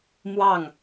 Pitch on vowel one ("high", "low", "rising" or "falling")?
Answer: falling